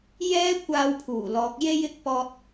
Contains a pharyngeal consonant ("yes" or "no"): no